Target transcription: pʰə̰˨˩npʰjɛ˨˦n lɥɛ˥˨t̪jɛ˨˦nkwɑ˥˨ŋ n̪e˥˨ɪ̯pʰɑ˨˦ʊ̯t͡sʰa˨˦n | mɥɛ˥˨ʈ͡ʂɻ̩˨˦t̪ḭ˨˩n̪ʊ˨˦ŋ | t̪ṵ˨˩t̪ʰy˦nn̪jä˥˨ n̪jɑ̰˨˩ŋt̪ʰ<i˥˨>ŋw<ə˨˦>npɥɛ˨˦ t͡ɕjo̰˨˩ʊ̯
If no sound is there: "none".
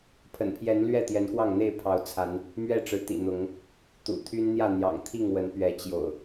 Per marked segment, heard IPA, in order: i˥˨, ə˨˦

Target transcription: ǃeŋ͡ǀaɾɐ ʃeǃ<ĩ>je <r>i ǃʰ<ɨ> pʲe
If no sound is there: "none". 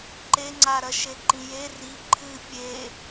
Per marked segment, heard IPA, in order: ĩ, r, ɨ

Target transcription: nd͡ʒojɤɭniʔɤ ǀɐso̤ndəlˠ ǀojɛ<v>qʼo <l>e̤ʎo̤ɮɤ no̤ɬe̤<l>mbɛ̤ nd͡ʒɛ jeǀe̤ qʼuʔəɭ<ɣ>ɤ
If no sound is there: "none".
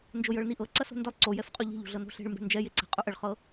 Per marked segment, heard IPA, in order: f, ʎ, ɭ, χ

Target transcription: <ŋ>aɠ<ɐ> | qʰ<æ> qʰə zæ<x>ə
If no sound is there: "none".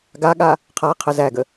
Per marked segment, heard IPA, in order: ɡ, a, a, ɡ

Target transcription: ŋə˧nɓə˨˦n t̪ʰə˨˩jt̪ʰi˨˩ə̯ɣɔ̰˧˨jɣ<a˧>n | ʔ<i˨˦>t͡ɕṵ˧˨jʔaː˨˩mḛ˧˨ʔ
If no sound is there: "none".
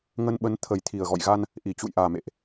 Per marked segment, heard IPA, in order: a˧, i˧˩

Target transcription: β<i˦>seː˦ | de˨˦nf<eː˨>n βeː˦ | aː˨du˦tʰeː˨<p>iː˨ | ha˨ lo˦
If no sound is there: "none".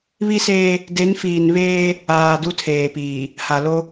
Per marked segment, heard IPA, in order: i˦, iː˨, p

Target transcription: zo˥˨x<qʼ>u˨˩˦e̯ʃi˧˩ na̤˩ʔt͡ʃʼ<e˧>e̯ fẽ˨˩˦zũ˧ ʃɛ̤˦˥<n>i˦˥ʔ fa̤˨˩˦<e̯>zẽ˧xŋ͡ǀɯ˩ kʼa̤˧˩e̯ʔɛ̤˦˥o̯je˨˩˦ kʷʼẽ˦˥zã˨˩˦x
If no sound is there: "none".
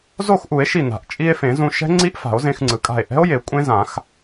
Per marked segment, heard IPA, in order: ʔ, i˧, ŋ͡ǀ, o̯

